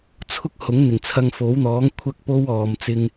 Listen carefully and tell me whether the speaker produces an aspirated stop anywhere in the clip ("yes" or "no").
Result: yes